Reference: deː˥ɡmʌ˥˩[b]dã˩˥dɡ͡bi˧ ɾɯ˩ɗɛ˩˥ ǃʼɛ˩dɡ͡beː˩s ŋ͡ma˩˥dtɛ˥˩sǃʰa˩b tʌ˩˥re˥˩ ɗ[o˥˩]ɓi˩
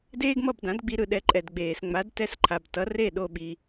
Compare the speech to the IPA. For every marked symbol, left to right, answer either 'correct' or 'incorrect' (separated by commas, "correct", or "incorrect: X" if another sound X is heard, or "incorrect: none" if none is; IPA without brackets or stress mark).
correct, correct